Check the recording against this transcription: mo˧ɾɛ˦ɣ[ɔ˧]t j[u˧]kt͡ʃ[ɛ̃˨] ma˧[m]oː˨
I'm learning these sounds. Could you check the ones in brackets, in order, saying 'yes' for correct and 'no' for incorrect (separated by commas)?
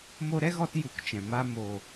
yes, yes, yes, yes